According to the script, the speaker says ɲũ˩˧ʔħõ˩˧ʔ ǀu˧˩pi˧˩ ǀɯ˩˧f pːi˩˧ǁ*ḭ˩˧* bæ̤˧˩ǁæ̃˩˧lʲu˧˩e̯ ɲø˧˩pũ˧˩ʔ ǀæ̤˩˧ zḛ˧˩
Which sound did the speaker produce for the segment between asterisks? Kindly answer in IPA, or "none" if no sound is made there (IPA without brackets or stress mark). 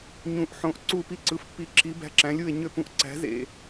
i˩˧